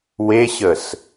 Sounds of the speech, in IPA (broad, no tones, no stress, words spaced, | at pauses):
weɕəs